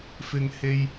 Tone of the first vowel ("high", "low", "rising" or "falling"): low